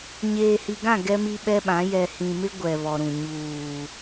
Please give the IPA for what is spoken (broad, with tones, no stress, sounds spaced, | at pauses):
ɲ eː˨ h i˨ ɡ ã˦˨ ɡ ɛ˦ m i˦ ɓ ɛ˦ ɓ ã˨˦ j ɛ˨ h ĩ˨ m ɪ˦ ɡʷ ɛ˨ β ɔ˨ ɾ ũ˨ ɲ uː˨